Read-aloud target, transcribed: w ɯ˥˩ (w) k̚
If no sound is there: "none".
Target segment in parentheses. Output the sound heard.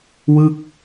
none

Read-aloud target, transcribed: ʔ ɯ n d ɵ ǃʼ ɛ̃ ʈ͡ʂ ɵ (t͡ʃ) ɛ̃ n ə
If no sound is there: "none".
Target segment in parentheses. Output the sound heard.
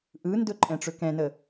k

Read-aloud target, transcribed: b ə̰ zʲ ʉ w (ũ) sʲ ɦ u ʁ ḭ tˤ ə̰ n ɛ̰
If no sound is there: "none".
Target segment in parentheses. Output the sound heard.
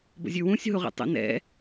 ũ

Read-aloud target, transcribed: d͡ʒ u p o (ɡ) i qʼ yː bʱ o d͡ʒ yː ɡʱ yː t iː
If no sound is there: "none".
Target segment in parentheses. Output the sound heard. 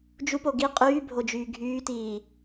ɡ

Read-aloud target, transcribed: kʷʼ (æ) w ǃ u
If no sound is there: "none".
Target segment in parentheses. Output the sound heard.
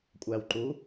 æ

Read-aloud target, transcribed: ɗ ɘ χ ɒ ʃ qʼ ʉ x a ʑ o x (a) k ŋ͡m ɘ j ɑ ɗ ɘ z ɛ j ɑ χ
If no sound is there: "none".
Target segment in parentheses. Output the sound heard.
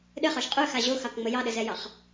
ɑ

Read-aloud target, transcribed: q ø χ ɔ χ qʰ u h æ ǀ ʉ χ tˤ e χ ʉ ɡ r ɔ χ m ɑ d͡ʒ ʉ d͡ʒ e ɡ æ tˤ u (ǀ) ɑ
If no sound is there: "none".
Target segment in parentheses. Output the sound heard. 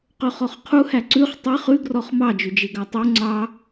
ŋ͡ǀ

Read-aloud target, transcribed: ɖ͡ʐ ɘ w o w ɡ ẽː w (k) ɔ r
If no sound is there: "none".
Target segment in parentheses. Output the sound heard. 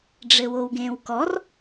k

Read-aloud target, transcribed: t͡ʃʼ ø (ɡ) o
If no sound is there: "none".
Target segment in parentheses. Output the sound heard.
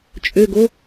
ɡ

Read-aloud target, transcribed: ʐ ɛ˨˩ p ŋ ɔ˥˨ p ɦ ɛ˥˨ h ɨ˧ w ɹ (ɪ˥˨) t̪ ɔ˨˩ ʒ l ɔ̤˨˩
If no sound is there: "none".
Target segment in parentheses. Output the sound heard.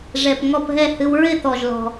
ɪ˥˨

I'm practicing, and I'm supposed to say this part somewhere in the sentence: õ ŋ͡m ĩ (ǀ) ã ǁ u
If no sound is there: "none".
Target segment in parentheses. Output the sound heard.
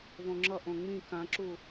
k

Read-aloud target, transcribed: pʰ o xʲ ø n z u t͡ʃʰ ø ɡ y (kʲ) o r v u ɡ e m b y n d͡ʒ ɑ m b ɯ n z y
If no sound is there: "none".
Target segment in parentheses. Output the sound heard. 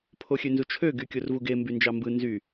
kʲ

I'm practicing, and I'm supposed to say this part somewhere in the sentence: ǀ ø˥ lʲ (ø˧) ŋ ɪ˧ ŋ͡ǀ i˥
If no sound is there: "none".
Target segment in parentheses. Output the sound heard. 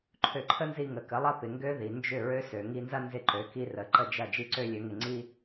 ø˧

